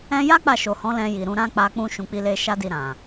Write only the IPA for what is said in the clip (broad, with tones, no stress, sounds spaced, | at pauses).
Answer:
ɛ̃˧ j a˦ k͡p a˦˨ ʃ o˨ h ɔ̃˨˦ l ɛ̃˧ j i˨ ɾ ũ˧ ɾ ã˦ k͡p a˧ k͡p ũ˧ ʃ ũ˨ k͡p i˧ l e˧ ʃ a˦ d i˧ ɾ ã˨